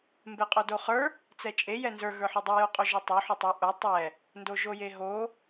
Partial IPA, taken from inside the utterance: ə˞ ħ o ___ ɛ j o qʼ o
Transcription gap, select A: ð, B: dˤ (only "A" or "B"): B